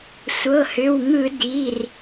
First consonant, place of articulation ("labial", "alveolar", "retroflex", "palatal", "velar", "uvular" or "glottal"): alveolar